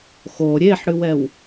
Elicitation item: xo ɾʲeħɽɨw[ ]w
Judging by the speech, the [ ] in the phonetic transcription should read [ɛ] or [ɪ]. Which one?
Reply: ɛ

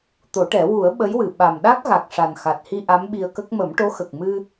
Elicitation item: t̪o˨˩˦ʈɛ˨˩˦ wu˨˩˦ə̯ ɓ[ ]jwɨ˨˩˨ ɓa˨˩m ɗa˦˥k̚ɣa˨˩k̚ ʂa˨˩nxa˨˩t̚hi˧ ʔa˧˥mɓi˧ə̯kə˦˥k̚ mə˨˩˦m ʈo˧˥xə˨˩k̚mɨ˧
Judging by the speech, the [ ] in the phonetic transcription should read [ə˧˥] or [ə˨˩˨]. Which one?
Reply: ə˧˥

